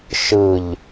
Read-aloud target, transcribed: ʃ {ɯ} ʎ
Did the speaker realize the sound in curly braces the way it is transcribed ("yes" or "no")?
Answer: yes